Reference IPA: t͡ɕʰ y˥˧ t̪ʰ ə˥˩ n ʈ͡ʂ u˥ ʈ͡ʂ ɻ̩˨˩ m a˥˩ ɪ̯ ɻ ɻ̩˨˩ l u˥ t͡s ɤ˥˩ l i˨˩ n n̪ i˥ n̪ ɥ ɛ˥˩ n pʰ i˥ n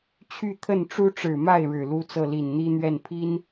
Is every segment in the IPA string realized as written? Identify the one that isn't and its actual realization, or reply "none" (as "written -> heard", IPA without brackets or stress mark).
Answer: none